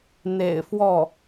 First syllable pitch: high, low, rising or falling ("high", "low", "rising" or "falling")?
low